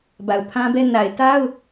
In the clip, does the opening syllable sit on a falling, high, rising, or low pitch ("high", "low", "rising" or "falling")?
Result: low